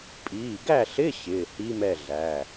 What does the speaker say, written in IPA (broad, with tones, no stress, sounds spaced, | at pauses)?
pʼ iː˩˧˩ ɡ æ˥˨ ɬ ɪ˧˥˧ ɕ ɪː˩˧˩ h i˧˥˧ m ɛ˥˨ ɮ æ˩˧˩